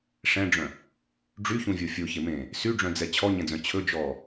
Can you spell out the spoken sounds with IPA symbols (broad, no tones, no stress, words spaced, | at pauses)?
ʂɛ̃ɖ͡ʐœ̃ | ɖ͡ʐyçũvʲo fʲoçemẽː | syɖ͡ʐœ̃d͡zɛ t͡ɕʰɔɲɛ̃d͡zœ̃ t͡ɕʰɵd͡ʒɔː